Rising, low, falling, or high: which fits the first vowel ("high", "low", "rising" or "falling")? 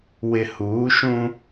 low